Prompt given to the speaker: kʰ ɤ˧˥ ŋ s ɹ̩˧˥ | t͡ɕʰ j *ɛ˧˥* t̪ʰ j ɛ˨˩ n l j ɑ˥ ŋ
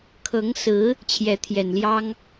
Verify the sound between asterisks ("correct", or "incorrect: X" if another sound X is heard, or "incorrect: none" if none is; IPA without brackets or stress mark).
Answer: correct